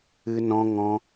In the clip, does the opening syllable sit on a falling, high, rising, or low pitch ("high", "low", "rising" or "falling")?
high